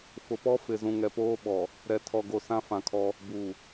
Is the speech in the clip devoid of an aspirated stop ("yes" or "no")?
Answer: no